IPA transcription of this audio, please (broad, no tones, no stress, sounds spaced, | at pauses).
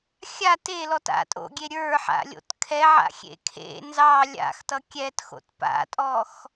xʲ a t e l ɔ t a̰ tʼ o̰ ɡʲ e ɾʲ ə˞ ħ a̰ lʲ o̰ t kʰ ɛ ʕ a̰ xʲ ḛ kʰ ḛ n z ɑ lʲ a̰ x t ʌ kʲ ɛ t x o̰ t p a̰ tʼ ɔ x